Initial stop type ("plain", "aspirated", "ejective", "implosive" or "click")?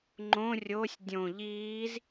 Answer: click